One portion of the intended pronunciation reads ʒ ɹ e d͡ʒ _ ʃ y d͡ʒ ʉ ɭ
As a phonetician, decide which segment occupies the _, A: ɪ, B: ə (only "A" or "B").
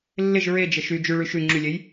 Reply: B